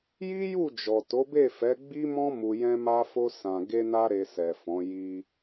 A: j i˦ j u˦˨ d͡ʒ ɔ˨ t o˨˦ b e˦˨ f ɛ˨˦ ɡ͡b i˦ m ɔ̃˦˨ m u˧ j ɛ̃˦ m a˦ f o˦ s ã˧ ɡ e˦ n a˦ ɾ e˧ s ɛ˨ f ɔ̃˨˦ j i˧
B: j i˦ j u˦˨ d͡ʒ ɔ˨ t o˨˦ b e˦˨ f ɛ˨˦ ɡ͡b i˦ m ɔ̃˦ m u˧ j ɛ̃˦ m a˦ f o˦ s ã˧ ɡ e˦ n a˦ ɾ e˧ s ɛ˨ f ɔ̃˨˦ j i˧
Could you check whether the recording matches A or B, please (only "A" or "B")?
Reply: B